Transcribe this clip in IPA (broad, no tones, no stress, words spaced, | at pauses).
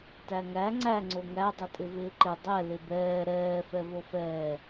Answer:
tæŋæ ŋ͡ǀæ ŋ͡ǀoŋæ dˤɪtʼɪvɪːǃɪ dˤɛ lɪbɛː ɾɛː fɛvofɛː